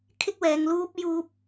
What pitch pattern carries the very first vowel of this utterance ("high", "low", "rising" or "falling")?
high